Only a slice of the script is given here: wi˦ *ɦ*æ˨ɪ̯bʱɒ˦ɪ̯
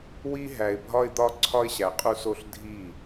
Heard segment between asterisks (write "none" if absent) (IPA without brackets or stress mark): ɦ